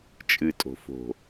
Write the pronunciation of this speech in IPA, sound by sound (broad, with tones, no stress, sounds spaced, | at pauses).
t͡ʃʼ ɨ˨ tʼ o̤˨ f o̤˨